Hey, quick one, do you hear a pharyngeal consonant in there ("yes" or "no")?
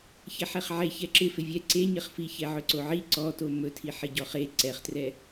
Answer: yes